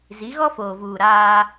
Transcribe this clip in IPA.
z i˨˦ ɣ ɔ˦ f oː˨ v uː˨ ɾ aː˦

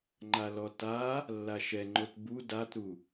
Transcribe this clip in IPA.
ŋ͡ǃ a l ɔ t a | lː a ʃ ɛ ŋ͡ǃ o t b u d a t ɾ u

